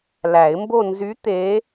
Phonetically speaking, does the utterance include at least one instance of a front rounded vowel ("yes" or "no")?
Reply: yes